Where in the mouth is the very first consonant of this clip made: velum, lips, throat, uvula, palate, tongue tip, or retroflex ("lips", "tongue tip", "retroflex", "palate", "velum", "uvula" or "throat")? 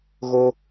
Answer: velum